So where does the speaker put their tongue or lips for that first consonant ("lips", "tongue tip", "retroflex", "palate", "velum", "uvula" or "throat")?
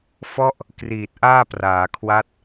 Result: lips